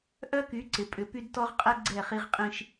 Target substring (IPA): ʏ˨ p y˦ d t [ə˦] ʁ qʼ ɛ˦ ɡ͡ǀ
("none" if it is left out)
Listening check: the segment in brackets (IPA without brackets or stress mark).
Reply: ɔ˦